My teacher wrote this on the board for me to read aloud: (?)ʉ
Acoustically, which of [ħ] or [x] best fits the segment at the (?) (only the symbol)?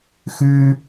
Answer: x